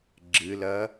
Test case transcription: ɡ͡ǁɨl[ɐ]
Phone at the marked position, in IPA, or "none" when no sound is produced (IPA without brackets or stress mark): ɐ